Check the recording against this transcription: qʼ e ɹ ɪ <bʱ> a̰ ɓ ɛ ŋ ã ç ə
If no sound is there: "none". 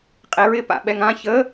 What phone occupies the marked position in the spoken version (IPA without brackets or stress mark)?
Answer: p